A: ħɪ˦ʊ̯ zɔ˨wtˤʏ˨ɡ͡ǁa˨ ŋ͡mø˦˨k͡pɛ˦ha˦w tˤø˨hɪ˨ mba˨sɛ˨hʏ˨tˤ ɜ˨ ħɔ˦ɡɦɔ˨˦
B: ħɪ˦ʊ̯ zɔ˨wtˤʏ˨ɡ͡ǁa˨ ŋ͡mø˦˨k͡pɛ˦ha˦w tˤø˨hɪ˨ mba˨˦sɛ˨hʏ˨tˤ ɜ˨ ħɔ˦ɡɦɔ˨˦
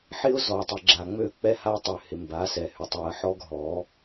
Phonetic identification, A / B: B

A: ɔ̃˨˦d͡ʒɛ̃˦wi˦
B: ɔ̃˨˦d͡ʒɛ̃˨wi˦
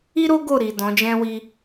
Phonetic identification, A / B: A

